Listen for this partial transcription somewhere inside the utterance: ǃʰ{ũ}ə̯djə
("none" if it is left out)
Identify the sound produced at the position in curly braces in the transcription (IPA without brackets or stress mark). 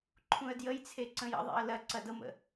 ũ